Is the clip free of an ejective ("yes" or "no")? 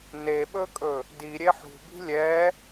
no